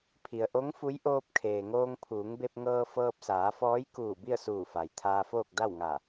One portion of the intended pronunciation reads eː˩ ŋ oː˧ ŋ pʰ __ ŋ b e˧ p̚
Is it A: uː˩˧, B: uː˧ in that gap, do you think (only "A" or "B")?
A